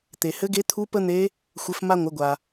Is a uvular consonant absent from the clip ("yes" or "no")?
yes